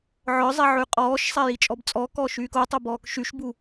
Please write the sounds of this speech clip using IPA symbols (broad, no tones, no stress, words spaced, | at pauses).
ʕœzˤɛ ʕyqʼɔːʃsˤɛ jit͡ʃʼɔbt͡sʼɔkɔː ʃyːkotˤo bɔːkʃyʃbu